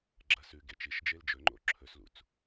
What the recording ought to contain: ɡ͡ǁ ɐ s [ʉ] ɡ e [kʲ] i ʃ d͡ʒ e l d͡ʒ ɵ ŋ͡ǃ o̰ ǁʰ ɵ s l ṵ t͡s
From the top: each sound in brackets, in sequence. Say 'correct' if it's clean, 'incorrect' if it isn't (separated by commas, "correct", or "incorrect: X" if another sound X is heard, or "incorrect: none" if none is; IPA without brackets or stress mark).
correct, incorrect: t͡ʃ